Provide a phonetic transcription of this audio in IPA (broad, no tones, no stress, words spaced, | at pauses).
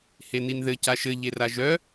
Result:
heninðɘ caʃɘ ʎeraʒœ